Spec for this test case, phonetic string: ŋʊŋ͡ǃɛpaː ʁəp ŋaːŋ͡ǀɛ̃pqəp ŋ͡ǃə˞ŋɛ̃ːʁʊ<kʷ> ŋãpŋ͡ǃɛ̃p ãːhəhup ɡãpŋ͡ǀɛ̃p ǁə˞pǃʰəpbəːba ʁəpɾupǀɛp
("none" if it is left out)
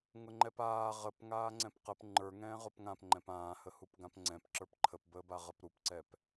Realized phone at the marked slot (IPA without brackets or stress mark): p